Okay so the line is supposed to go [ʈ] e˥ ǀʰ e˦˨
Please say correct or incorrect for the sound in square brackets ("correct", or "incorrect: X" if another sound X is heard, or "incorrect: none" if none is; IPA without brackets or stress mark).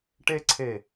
correct